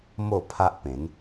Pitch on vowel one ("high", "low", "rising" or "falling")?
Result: falling